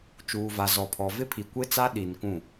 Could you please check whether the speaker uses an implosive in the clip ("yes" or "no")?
yes